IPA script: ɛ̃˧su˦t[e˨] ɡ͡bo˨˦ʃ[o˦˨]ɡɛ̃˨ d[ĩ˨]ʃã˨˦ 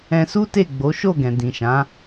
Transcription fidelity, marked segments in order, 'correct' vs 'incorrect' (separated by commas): incorrect, correct, correct